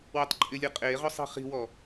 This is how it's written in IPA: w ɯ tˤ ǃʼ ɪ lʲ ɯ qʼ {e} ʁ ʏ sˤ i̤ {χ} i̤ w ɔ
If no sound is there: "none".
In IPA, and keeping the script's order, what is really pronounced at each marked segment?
e, χ

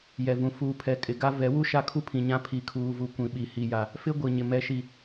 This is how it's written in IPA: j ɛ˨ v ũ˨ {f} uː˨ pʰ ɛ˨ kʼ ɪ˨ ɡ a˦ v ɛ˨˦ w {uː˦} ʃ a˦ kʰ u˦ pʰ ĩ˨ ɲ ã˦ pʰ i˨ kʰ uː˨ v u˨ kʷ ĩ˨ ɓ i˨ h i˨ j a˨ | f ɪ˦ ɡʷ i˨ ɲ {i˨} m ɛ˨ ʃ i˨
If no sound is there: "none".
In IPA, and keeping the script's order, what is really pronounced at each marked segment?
f, u˦, ɪ˨

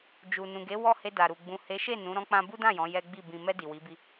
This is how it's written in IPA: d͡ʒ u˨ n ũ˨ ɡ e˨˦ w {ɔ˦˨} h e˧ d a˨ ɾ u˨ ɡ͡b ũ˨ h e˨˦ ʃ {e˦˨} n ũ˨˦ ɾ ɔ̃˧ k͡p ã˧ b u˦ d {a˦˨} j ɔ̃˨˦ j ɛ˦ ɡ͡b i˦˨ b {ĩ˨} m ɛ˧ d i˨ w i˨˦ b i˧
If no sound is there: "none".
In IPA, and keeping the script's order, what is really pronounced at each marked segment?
ɔ˦˨, e˦˨, ã˦˨, ĩ˨

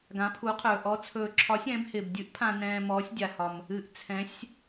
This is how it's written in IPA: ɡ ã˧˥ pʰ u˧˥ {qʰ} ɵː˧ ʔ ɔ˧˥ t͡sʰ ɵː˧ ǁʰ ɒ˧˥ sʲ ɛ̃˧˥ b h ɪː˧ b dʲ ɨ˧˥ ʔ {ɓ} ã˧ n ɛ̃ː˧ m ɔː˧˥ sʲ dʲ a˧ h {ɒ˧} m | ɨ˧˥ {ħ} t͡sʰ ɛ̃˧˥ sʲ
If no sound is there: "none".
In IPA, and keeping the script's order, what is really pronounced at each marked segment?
qʰ, pʰ, ɒ˧, ʔ

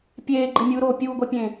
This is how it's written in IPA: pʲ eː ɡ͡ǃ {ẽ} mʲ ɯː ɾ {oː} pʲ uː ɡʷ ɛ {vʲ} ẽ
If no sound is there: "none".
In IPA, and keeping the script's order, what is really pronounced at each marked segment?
e, oː, pʲ

